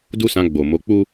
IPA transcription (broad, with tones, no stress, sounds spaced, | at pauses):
d u˦ s ã˧ ɡ͡b o˨ m o˨˦ k͡p u˦